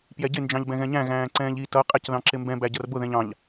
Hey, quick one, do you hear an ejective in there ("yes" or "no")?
yes